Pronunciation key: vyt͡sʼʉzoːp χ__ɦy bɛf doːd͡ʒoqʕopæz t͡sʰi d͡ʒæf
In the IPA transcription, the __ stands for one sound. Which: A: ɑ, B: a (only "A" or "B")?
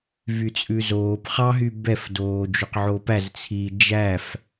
A